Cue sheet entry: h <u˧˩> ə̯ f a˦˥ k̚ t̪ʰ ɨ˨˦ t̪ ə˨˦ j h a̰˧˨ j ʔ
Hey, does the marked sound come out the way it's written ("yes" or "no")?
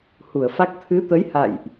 yes